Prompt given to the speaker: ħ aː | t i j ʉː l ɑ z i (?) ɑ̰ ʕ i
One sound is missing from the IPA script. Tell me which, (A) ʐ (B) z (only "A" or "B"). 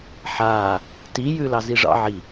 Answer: A